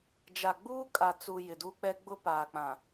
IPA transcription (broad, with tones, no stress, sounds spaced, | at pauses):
d͡ʒ a˨ ɡ͡b uː˦ kʼ a˨ t͡s u˨ j ɪ˨ d u˦ k͡p ɛ˦ ɡ͡b ʊ˦ p aː˨ k͡p ã˨